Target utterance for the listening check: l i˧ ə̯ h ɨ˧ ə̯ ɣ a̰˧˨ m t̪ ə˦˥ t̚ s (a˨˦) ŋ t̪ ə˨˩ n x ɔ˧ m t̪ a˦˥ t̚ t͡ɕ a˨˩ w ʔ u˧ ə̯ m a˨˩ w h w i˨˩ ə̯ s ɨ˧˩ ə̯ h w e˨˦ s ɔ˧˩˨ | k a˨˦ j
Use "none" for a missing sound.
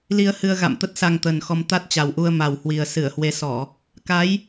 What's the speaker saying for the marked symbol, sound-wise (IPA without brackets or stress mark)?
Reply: a˧